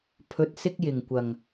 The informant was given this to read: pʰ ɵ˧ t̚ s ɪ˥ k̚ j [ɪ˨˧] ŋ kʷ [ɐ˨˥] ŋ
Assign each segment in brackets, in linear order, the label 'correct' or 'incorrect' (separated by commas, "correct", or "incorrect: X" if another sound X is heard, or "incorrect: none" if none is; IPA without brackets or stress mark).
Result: incorrect: ɪ˨˩, incorrect: ɐ˨˩